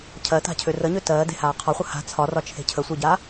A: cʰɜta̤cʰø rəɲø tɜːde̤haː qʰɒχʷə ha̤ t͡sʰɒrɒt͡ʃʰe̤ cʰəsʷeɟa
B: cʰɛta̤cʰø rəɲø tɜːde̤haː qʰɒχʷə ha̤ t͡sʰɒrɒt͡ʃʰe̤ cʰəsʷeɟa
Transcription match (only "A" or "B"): A